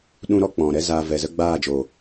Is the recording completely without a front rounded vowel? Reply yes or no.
yes